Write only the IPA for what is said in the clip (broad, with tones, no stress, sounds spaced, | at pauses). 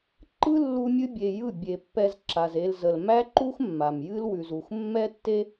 ǃ ɯ˦ lː u˧ mʲ ɨ˦ bʲ e˧ j ɯ˦˨ bʲ e˧ pː ɛ˧ z ǁ a˨ z e˧ l z ə˨ l m æ˦ ǃ u˦ x mː a˨ m j ɨ˦ l w ʉ˨ z u˨ x mː ɛ˦ tː e˦